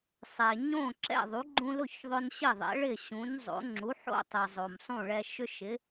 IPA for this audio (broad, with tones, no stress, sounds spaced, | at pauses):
sˤ ɛ˨ ɲ õ˥˨ ǁ ɛ̰˥˨ ðˤ u˨˥ ɡ͡ǃ ũ˦ l ʊ˥˨ ç ðˤ ʊ˦ n ɕ ɪ˥˨ ðˤ ɛ̰˨˥ ɭ ɪ˥˨ ɕ ũ˨˥ n zˤ o̰˨˥ ŋ͡ǁ u˨˥ ħ o̰˥˨ tˤ ɛ˨ zˤ o˨ m sˤ ũ˥˨ ɭ ɛ˦ ʃ ʏ˦ ʃ ɪ˨˥